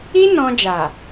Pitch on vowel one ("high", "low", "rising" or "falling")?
high